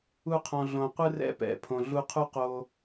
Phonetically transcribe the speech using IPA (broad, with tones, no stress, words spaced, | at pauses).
u˧qʰɔ̃˨ ɮõ˨ qʷɯ˦rɛ̰˦pɛ̰˨˦ pʰõ˨ɮu˧qʰu˦ qo˧